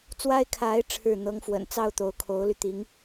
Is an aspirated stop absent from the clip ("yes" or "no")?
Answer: no